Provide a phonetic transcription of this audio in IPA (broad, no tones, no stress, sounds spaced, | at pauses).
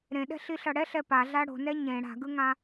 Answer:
ɾ ẽ ɗ ɛ̤ ɬ i ɬ ʌ ɽ ɛ ɬ ɛ p a ɮ a ɽ o̤ n ɛ ɲ ẽ ɽ a̤ ɡ ɯ ŋ ã